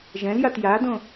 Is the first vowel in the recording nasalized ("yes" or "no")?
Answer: yes